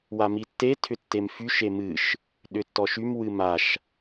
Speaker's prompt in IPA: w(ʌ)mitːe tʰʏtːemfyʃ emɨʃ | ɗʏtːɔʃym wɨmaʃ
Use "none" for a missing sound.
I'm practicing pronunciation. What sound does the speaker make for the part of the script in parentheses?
a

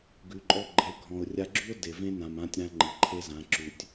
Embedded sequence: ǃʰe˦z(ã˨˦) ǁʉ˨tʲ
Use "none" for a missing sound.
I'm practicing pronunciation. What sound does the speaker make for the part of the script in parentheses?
ã˨˦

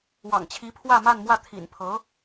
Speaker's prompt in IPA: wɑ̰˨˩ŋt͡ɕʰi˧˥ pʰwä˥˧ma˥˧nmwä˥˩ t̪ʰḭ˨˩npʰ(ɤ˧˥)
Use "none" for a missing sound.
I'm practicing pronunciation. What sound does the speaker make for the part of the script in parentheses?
ɤ˧˥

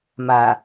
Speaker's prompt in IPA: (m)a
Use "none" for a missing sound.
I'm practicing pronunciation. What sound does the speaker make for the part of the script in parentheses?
m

